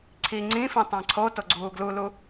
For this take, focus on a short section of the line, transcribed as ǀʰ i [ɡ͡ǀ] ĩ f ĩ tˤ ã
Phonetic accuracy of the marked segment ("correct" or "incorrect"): incorrect